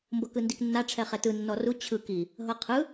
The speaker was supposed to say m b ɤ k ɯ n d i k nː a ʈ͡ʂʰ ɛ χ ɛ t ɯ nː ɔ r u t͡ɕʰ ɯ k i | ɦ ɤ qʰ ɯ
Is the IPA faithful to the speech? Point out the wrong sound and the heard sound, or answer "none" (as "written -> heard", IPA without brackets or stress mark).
none